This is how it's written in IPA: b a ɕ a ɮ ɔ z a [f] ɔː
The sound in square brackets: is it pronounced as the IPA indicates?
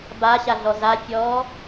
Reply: no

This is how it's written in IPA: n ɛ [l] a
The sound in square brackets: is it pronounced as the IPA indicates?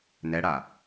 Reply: no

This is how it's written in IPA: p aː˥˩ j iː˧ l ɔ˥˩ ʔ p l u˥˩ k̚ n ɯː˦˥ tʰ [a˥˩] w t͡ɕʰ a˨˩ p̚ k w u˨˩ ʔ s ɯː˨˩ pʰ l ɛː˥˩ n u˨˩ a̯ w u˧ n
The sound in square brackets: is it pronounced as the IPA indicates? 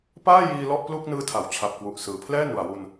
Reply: no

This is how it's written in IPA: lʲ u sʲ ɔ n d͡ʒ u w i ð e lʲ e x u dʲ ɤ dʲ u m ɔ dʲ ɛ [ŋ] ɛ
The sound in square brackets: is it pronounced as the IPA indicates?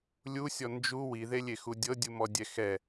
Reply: no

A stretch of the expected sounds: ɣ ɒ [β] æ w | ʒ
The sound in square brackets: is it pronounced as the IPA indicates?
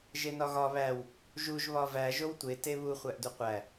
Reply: yes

